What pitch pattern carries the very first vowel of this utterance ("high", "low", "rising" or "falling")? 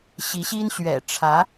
rising